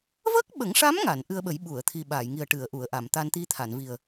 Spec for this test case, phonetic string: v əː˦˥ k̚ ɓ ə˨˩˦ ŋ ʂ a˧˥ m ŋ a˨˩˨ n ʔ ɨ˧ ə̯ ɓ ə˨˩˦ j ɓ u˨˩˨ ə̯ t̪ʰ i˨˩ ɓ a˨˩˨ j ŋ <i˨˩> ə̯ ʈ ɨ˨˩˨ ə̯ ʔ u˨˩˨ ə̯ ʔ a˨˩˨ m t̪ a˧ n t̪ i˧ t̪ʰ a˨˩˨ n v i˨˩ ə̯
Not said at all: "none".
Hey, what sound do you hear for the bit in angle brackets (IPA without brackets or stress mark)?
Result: i˨˩